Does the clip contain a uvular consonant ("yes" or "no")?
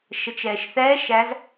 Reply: no